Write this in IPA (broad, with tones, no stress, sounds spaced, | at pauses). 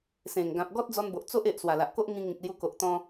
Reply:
s ẽ˨˩ ŋ ɡ ã˨ p̚ ɡ ɔ˦ t̚ d͡z ɔ˧ n b o˨ ʔ t͡s o˦ ʔ e˨ ʔ s w a˨˩ l a˨ ʔ k o˦ ʔ ŋ ĩ˧ ŋ ĩ˨ k̚ l j u˧ k o˨ ʔ t̪ ɔ̃˧